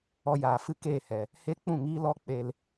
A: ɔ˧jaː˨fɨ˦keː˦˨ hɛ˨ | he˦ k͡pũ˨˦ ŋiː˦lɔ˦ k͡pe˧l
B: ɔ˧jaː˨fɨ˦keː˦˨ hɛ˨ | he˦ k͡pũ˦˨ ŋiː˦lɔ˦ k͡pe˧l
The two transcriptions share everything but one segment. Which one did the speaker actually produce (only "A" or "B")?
B